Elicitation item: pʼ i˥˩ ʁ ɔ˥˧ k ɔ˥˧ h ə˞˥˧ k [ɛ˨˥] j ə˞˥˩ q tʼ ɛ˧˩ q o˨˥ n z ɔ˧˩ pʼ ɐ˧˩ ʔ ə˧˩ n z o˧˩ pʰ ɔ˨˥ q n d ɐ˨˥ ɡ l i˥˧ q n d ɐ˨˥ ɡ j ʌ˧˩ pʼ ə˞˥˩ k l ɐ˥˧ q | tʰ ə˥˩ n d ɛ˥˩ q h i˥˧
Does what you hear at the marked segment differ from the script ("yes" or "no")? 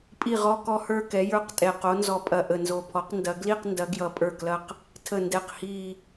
no